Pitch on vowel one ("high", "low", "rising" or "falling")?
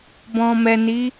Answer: low